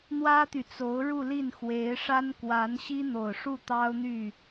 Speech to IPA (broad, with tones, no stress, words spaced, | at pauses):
n̪wä˥t̪y˨t͡so˧˥ʊ̯ ɻu˥˧li˥˩n xwe˧˥ɪ̯ʂa˥n kwa˧˥nɕi˥n̪o˨˩ʊ̯ʂu˥˩ t̪ɑ˥ʊ̯n̪y˥˩